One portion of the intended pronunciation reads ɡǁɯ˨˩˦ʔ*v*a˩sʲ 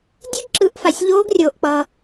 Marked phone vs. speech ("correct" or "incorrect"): incorrect